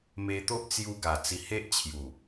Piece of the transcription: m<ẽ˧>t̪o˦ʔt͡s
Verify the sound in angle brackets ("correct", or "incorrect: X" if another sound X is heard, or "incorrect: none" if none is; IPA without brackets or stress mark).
incorrect: e˧